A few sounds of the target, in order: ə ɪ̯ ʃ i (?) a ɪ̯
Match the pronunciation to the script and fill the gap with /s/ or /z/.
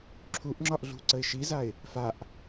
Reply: z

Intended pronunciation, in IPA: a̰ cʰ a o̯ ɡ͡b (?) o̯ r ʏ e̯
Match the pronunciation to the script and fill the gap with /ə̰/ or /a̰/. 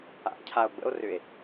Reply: ə̰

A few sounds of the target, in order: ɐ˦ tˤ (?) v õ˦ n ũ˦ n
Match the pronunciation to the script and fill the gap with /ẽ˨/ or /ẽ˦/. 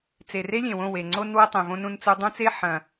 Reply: ẽ˨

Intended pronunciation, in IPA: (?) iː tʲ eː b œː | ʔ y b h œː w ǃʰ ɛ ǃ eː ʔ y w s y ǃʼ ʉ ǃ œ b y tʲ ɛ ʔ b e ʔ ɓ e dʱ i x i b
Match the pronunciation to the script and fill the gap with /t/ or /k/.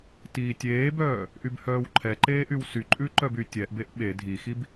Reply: t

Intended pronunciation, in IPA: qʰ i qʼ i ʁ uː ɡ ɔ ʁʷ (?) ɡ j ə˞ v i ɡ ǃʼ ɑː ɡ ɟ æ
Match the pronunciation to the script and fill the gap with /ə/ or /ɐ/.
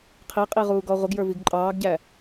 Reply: ə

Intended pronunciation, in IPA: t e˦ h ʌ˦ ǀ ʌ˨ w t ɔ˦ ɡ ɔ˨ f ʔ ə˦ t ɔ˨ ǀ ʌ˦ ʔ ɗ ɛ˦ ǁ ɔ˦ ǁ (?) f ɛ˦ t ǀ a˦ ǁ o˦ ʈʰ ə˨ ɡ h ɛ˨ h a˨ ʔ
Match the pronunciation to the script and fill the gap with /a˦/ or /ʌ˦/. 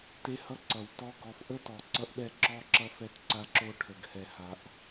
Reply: ʌ˦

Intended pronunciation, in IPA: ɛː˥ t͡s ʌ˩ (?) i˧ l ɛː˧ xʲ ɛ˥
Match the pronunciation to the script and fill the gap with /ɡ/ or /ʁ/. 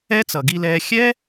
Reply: ɡ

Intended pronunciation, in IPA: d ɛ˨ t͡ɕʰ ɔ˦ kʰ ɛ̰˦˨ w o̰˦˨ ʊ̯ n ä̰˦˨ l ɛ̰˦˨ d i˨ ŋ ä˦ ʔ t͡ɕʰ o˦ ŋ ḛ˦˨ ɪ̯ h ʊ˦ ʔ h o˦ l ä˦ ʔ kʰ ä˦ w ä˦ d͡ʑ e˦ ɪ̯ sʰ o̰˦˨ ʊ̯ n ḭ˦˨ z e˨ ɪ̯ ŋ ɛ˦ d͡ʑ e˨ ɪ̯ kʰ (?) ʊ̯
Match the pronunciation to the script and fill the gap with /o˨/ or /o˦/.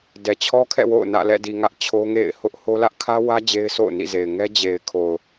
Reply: o˨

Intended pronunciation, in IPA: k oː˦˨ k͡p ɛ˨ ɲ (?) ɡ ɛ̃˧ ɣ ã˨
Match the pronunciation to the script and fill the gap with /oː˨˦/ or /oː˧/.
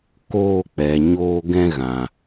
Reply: oː˧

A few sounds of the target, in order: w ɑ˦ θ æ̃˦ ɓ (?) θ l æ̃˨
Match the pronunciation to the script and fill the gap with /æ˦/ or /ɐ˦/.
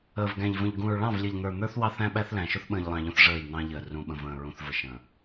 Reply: æ˦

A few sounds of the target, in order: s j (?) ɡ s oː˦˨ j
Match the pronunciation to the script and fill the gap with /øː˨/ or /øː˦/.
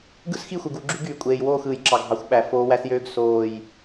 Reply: øː˦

